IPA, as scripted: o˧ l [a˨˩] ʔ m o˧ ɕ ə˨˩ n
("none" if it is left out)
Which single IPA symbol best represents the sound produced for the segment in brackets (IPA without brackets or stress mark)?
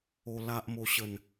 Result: a˦